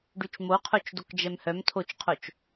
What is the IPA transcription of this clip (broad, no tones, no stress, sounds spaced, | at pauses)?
ɖ y t͡ʃ m o qʰ o t͡ʃ d o k d͡ʒ ɛ m h œ m tʰ o t͡ʃ qʰ o t͡ʃ